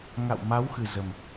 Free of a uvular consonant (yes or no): yes